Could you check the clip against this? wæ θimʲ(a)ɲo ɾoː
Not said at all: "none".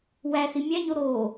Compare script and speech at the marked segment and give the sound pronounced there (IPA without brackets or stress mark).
æ